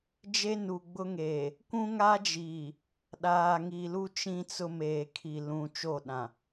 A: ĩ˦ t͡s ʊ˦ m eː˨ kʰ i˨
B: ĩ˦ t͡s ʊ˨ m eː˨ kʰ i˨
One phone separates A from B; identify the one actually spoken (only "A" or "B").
A